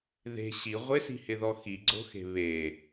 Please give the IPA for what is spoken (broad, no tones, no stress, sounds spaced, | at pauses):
ð e̤ ɕ i ʁʷ ɪ s i̤ h ɪ ð ɔ x i ɡ͡ǀ o̤ x e̤ β e